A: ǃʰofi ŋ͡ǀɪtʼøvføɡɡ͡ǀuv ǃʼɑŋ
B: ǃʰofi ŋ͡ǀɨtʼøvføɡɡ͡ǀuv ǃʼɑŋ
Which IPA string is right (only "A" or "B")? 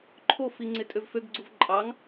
A